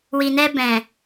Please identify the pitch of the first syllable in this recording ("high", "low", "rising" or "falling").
low